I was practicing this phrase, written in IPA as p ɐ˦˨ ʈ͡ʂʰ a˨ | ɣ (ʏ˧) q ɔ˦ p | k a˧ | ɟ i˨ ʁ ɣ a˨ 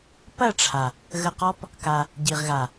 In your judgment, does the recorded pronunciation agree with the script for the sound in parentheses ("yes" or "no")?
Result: no